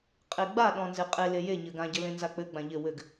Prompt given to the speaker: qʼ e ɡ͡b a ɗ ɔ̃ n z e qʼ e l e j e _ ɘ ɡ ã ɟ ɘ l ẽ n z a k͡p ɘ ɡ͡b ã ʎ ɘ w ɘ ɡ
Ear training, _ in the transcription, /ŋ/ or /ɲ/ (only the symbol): ɲ